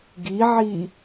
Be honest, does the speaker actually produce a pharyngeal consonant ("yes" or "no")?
yes